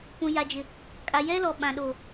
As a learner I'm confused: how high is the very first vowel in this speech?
high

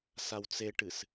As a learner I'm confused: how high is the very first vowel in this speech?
low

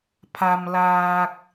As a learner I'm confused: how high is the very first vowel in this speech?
low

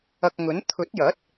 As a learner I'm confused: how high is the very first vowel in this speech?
low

